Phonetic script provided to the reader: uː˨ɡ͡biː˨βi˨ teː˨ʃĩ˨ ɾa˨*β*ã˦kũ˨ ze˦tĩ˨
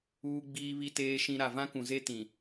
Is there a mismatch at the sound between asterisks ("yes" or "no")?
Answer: yes